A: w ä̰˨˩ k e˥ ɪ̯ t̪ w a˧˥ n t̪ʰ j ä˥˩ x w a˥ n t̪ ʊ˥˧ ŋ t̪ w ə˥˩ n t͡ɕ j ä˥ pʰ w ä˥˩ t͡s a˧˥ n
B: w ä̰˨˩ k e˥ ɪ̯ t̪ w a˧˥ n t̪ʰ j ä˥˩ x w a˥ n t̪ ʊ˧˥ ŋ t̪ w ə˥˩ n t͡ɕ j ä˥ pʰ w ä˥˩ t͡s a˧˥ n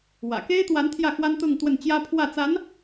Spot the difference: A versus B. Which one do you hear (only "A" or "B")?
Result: A